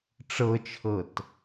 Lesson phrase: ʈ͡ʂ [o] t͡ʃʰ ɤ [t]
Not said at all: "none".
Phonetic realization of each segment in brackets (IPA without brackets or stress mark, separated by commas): ɤ, t